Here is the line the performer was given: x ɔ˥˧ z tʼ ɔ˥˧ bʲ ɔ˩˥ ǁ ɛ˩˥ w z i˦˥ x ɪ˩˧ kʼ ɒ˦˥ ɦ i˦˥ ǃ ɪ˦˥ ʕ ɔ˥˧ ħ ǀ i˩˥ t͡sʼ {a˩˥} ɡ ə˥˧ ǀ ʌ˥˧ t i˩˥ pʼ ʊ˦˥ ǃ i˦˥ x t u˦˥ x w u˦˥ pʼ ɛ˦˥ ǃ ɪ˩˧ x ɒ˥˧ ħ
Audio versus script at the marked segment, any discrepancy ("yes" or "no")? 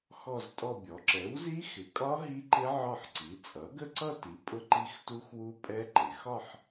yes